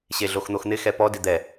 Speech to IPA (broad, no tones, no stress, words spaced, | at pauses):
ɕeɮoxn̪oxn̪ɪ xɛpɔ dɪd̪ɛ